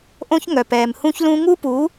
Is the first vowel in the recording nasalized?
yes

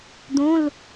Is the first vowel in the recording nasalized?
yes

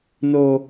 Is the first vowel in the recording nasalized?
no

